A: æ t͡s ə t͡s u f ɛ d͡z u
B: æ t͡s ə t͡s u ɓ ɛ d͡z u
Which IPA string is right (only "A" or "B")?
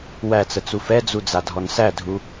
A